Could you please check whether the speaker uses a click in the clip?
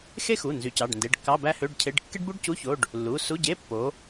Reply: no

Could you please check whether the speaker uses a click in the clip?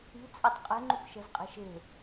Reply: yes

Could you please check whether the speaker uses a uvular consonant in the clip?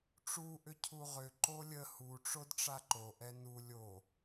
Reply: yes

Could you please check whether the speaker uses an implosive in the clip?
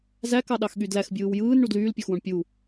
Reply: yes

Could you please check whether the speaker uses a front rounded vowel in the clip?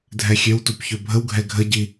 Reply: yes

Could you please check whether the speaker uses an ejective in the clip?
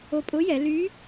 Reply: yes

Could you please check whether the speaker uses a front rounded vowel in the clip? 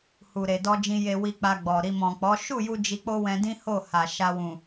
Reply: no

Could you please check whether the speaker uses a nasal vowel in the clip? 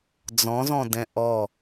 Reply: yes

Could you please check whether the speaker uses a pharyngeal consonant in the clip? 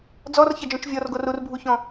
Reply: no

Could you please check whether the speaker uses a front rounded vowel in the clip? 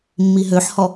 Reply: yes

